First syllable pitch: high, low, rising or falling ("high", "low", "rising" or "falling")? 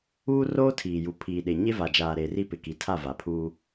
high